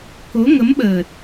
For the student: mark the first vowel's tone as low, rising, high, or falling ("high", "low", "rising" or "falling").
rising